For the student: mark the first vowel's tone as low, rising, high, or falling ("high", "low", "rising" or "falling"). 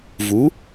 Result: rising